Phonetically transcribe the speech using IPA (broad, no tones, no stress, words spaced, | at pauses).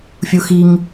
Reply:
fʲuxiŋ